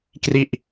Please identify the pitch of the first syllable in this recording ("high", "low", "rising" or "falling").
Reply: falling